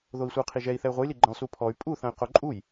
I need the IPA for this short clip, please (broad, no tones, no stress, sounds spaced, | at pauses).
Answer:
ð o i̯ sʷ ɛ u̯ qʰ i ʒ ɛ i̯ θ ɛ y̯ ʁʷ ɨ j l i ɡ͡ǃ ɐ̃ lˠ s u pʰ ɔ y̯ pʼ u θ ɐ̃ y̯ q o ǃʼ u j